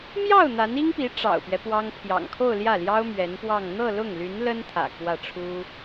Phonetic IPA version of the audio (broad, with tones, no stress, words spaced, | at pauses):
mjɑ˥˩ʊ̯ n̪a˧˥ni˥ŋpi˧˥ ʈ͡ʂɑ̰˨˩ʊ̯pɥɛ˦ pwɑ˥ŋ pʰjɑ̰˨˩ŋkʰo˥˧ʊ̯ljä˥˩ljɑ˥ʊ̯ mɥɛ˧˥npwɑ˥˧ŋ n̪ɤ˥˧lʊ˥˩ŋly˧˥n lə˥nt̪ʰä̰˨˩ kwä˥˩ʈ͡ʂʰu˥